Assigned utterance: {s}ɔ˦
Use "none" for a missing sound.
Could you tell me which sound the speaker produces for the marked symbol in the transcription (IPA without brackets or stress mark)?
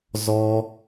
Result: z